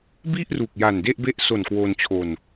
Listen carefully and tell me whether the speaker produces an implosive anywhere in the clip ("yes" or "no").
no